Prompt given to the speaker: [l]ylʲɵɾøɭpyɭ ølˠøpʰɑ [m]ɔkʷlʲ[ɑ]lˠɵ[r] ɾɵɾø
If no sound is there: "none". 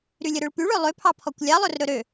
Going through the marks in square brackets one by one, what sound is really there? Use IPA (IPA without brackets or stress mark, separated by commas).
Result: ɾ, pʰ, ɑ, r